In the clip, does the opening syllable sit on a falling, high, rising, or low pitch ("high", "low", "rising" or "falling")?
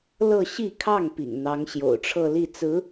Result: falling